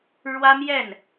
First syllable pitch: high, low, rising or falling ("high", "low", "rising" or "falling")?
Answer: high